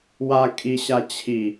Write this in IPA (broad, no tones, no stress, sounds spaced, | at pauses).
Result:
w a kʼ i ɕ a t͡ɕʰ i